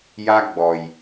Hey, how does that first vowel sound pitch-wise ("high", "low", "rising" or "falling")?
high